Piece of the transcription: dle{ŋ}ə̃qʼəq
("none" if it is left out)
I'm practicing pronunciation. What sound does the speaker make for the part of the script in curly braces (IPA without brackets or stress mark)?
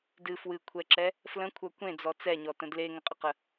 ŋ